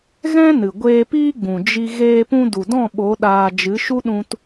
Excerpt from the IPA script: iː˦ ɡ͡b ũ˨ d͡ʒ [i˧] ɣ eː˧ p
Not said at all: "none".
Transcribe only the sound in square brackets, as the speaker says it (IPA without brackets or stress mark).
i˧